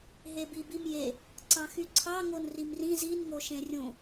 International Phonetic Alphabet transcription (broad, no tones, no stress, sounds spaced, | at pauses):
ɦ e b i b i m j e | ǀ ɑ̃ x y ǀʰ ɑ ŋ o n r i m r ĩ z i n ŋ o ʃ ẽ rʲ ũ